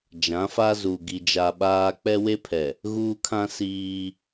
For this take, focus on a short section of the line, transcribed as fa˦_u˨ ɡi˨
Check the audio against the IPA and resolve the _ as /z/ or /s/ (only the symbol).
z